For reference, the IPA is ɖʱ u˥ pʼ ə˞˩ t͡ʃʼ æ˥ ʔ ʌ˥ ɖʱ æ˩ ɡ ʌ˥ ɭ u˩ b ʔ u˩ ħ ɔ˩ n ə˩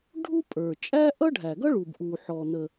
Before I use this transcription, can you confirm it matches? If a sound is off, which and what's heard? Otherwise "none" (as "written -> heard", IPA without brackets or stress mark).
none